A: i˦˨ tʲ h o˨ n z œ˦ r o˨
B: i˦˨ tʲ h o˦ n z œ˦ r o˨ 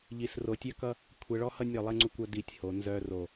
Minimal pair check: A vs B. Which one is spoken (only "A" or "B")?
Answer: A